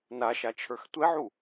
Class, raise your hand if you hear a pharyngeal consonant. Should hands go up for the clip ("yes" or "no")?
yes